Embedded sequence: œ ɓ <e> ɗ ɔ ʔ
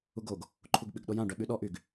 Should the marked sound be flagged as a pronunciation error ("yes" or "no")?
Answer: yes